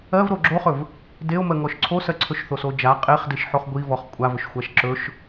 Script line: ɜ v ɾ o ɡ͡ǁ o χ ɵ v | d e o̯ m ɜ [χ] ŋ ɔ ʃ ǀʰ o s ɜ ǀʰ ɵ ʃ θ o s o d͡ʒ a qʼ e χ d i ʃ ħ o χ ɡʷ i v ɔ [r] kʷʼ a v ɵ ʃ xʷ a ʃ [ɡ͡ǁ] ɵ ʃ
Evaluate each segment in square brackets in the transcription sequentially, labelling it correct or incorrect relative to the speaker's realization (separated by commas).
incorrect, incorrect, incorrect